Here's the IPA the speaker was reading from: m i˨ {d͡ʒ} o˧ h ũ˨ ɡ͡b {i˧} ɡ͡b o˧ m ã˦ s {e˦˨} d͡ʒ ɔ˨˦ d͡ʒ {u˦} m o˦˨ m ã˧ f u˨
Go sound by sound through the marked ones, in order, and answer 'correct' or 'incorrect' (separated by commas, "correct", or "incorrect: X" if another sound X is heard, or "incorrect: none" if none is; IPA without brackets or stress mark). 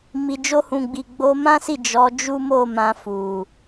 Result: correct, incorrect: i˨, incorrect: i˦˨, correct